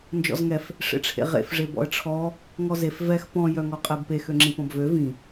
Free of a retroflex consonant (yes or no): no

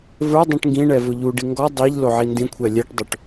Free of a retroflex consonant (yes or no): no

